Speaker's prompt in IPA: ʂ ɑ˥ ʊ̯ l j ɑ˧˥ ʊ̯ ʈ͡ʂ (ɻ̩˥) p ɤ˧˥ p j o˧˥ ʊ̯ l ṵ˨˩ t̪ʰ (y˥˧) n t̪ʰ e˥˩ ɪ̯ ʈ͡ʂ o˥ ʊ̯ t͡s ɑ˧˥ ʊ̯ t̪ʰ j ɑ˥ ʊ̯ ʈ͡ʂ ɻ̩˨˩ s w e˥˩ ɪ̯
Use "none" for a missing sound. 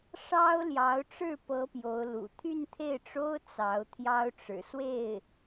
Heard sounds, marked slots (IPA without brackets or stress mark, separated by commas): ɻ̩˥˩, y˥˧